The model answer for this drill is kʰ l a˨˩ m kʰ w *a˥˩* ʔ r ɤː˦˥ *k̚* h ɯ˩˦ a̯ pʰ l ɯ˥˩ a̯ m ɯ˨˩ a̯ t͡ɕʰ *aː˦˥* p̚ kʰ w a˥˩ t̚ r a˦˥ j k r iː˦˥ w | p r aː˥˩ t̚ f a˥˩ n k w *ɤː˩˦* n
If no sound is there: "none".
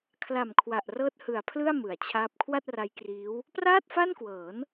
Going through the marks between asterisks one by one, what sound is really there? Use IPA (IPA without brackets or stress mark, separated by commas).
a˨˩, t̚, aː˦˥, ɤː˩˦